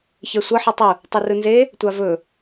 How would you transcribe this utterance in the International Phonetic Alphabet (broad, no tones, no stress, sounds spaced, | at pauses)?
ç ɛ sʷ ʌ ħ e tˤ ɯ | tˤ u r ɯ n z e | tʷ a v ɵ